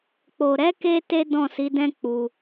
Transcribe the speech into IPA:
k͡po˨ɾɛ˨˦ke˧ te˦dɔ̃˦˨si˨˦dɛ̃˦ k͡pu˧

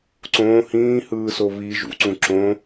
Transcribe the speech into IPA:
ǀõː hĩːhɯːso βi ʒṵǀũ ǁõ

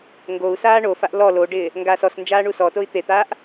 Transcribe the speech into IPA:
ŋɡou̯ saːɳofaʔ lɔ loɖɪː | ŋɡaːsɔsnd͡ʒaː ɳusɔtoi̯ t̪et̪aːʔ

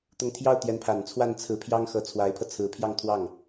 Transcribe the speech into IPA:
t̪ʊ˧˥ŋt̪ʰjɑ˥˩ʊ̯t̪jɛ˧˥npʰa˨˩n t͡sʰwa˥˩nt͡sʰɹ̩˧˥pʰjɑ˥ŋ xɤ˧˥t͡sʰwa˧˥ɪ̯pʰɤ˧ t͡sʰɹ̩˧˥pʰjɑ˥˧ŋt̪ʰwɑ˥˩ŋ

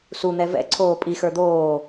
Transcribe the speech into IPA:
sun̪ɛ vɛ̰ǀʰoː pʼixə˞ d̪oː

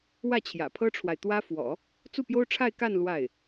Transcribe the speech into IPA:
wä˥˩t͡ɕʰjä̰˨˩pʰɤ˥ʈ͡ʂʰwa˨ɪ̯ t̪wä˥ fwɔ̰˨˩˦ | t͡su˥˩pjo˥ʊ̯ʈ͡ʂʰa˥˧ɪ̯ ka˥˧n lwa˥˩ɪ̯

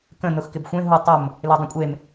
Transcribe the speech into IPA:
kə̃ nʊxkɪbxʷẽ ɦu tˤʊm | ledˤə̃kʷʼem

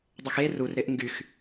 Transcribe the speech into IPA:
dˤœxe rur ɾɪʔŋɡyx

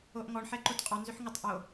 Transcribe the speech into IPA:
oʔŋɔɳ ħɛǃotqʼɔ nzʏħŋʏtˤ ʔo

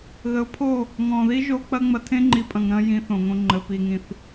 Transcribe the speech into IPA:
ɣə˨˦ʊ̯pʰo˦˨ | ŋɔ̃˨ði˦ ʒo˦ k͡pɐ˦ŋ͡mɐ˧ tʰẽ˦ŋ͡ǃi˨pʼɐ̃˨ŋɾɐ̃˧ jĩ˧θõ˨ŋõ˧ŋ͡ǃə˨ pi˨ŋĩ˨θ

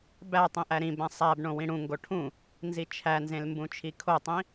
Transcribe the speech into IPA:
bætˤĩ ʔæɾĩbæ̃ sˤæbɳõ wĩɽũŋɡo ʈʰũ | nzit͡ʃʰænzẽl mbũt͡ʃʰikʰotˤĩ

